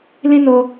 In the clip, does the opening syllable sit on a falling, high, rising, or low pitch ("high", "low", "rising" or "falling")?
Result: high